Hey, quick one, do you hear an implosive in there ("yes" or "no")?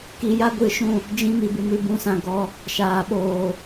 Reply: yes